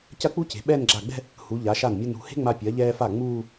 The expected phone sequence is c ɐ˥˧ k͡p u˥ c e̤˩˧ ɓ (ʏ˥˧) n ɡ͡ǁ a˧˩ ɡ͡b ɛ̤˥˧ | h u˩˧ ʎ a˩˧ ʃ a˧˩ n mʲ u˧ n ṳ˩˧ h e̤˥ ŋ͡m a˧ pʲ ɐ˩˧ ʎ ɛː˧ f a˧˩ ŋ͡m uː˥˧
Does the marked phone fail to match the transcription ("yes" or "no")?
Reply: yes